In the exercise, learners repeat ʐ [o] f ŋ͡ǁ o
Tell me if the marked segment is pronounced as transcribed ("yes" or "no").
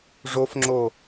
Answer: yes